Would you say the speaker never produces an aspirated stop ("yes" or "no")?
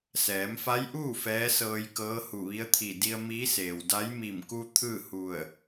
no